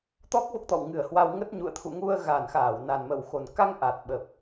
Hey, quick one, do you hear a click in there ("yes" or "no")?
no